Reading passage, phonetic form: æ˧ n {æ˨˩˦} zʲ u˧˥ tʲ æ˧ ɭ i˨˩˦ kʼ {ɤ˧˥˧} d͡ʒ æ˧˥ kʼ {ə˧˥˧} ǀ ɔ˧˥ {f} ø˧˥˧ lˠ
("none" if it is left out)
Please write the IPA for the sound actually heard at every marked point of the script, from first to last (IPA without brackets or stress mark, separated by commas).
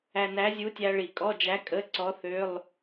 æ˧˥, ɔ˧˥˧, ə˧˥˧, θ